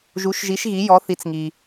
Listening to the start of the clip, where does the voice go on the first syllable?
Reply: rising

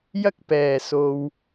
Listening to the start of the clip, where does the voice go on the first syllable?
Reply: high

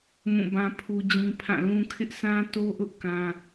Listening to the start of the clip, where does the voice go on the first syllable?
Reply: falling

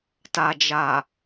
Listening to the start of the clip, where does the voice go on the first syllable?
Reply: low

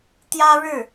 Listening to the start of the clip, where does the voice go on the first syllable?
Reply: high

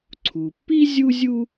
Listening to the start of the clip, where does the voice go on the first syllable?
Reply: low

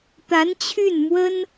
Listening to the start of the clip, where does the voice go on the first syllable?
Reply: rising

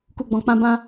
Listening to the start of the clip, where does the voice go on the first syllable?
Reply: low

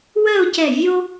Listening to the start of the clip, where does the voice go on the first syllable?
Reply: falling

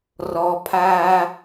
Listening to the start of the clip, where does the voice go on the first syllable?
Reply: low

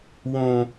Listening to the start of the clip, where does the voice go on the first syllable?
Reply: high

